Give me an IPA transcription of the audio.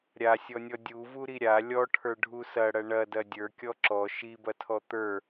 ɾʲ a sʲ ɔ nʲ ɔ dʲ u v u ɾ i ɾʲ a lʲ ɔ ʈʰ ə˞ ɖʱ u s ɐ ɽ ɐ ɳ ɐ d ɐ dʲ ə˞ kʲ ɔ ǁ ɔ ʃ i b ɐ tʰ ɔ t̪ ə˞

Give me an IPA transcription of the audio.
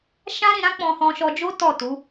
ʃ ã˦ ɾ ĩ˧ ɾ ã˦ k͡p ɔ̃˧ h ɔ̃˧ ʃ ɔ˧ d͡ʒ o˦ t ɔ˦˨ t u˨˦

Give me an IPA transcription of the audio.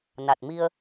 n a˨˩ t̚ m i˧ ə̯

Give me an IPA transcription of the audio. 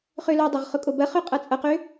χ ø l o dˤ o ʁ χ ʊ kʼ o b ɐ χ ø qʼ ɐ t͡sʼ ɐ q ø

